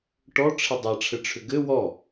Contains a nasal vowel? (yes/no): no